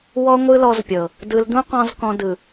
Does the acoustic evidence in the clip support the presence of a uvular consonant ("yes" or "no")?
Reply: yes